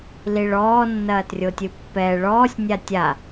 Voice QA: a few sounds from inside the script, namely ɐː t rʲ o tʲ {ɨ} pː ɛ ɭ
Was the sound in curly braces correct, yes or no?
yes